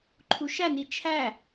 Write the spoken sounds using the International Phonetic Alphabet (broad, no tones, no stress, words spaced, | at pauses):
ǃʰuʃæ nit͡ʃʰæ